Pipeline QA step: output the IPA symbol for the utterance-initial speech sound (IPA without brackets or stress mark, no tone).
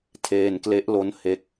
tʰ